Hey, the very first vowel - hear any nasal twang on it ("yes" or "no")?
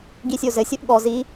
no